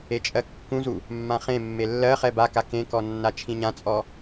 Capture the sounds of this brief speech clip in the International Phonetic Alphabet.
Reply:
e t͡ʃʼ ɜ kː ũ z u | mː ã χ ẽ mː e lː ɜ χ ɛ b a k a k ẽ k ɔ nː a t͡ʃʰ ĩ ɲ ã t͡sʼ ɔ

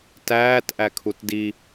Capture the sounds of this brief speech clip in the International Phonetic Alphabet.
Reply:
t æː t ʔ æ kʰ u t d i

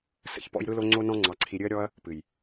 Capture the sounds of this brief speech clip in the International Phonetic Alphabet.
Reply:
s ə̰˦ ç p ɔ̰˦ j ɾ ɯ˦ l o˦ ŋ͡ǀ o˦ n ɔ̃˦ ŋ͡ǀ ɑ˧ ǀʰ i˧ ɾʲ ɨ˦ ɐ̯ ɾʲ ɔ˦ ɐ̯ | p ɨ˨ j

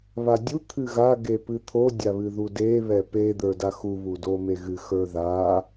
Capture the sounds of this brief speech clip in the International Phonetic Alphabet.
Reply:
β a dʲ u t̪ʰ ɨ ɣ a ɡ e p ɨ t̪ʰ o dʲ a β ɨ ð u d e β ɛ p e d̪ ə˞ d a x u β u d o m e ɣ ɨ x ə˞ ð a

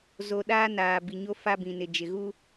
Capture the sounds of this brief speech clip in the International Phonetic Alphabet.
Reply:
z o˨ ɗ aː˦ n aː˨ b i˨ ɲ o˦ f a˦ b ĩ˨ n ɪ˨ d͡ʒ ɪ˨ ɣ u˦

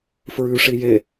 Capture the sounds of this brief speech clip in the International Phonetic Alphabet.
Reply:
f ɹ ʉ ʂ i j e

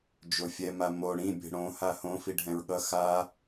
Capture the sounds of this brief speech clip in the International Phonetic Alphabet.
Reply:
d͡ʒ o fʲ ɛ m a m o ɽ ĩ bʲ ɛ̤ ɽ õ h a h õ f i ɖʱ ɛ̃ ɹ ɠ ʌ x a

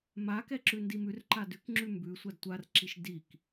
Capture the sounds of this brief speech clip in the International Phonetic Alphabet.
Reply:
m a k ɛ ǁ ʉ n d i m ʉ r ǃ a d ʉ k ŋ͡ǁ ʉ m b ʉ sʷ a d tʷ a r ǁ i ʃ d i k

